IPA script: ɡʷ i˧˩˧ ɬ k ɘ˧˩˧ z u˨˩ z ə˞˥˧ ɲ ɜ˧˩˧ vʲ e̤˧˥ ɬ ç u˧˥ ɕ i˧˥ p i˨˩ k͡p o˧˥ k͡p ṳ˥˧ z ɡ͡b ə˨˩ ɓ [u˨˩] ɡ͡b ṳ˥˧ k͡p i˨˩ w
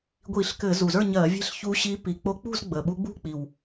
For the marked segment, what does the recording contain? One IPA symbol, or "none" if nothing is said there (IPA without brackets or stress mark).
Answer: u˧˥